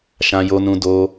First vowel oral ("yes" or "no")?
no